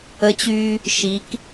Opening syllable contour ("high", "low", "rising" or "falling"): rising